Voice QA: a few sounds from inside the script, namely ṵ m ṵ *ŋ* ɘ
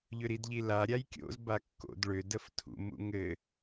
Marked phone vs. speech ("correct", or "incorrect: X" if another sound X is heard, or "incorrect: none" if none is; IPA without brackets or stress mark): correct